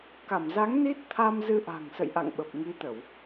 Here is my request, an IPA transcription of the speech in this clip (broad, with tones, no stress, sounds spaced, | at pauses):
k a˧˩ m z a˨˦ ŋ n i˦˥ t̚ t̪ʰ a˧ m z ɨ˧ ʔ a̤˨˩ ŋ s ə̰˧˨ j ʔ a̰˧˨ ŋ ɓ ə˨˩ p̚ ŋ i˨˦ t̪ ə˧˩˨ w